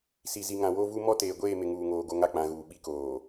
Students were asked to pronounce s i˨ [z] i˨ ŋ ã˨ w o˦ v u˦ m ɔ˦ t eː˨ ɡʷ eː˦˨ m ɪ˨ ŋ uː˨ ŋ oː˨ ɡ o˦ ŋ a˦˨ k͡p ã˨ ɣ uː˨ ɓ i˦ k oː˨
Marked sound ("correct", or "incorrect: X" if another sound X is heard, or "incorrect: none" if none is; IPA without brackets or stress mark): correct